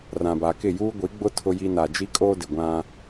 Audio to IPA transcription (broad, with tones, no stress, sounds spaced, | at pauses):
r ã˨ b a˨ k ɪ˦˨ j uː˦ ɡʷ i˨˦ ɡ͡b ʊ˦ tʰ ʊ˦ j i˦ n a˨ d͡ʒ i˦ kʼ oː˦ d ɪ˨ ɡʷ ã˦